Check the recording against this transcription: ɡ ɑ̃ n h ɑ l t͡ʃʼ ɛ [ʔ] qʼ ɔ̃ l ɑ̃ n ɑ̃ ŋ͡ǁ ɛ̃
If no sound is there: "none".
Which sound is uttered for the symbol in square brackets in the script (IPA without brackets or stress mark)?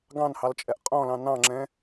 ʔ